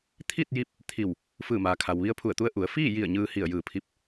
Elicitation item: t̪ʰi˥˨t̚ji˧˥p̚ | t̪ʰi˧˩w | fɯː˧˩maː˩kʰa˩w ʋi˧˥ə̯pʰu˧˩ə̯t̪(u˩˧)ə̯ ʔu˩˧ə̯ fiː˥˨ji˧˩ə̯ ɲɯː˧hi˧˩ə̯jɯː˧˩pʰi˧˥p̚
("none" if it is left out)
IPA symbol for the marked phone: u˧˥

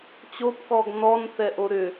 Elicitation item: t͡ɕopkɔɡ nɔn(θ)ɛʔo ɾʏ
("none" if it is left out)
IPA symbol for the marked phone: θ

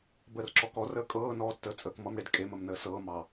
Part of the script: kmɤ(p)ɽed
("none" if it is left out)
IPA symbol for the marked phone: m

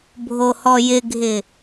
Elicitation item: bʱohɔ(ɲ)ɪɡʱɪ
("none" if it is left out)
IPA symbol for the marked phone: j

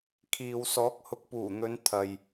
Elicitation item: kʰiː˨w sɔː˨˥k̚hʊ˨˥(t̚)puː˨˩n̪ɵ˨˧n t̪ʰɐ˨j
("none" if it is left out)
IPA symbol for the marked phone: k̚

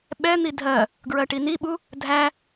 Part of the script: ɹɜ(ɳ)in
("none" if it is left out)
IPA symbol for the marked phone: ʈ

